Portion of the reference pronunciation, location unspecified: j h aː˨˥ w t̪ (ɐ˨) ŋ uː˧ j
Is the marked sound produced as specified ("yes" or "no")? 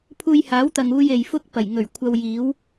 yes